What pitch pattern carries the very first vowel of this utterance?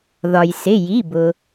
low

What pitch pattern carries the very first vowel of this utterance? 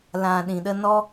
low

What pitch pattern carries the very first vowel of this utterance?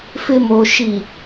low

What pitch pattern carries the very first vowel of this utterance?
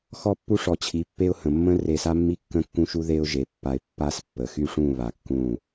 high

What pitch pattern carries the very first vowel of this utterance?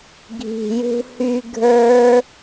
low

